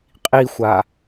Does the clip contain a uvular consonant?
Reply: yes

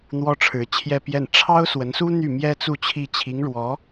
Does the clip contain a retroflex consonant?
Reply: yes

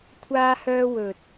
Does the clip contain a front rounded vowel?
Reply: yes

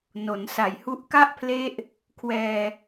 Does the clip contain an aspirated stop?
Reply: yes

